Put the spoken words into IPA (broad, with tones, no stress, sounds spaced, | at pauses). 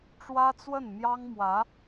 ʈ͡ʂ w ä˥ t͡s w ə˥˩ n m j ɑ˥ ŋ m w ä˧˥